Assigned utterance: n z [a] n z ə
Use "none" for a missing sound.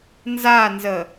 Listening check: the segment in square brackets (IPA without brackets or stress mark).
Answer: a